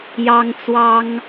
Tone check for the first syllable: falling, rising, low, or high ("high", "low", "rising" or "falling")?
high